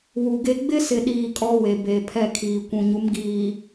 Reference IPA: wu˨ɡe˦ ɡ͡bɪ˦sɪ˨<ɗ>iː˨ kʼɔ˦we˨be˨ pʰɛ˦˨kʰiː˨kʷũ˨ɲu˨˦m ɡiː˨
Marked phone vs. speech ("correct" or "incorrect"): correct